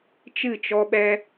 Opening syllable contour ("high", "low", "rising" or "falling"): falling